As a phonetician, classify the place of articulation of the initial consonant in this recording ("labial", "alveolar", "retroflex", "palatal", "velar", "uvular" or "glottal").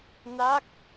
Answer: alveolar